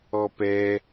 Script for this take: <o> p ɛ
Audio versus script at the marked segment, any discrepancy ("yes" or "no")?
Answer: yes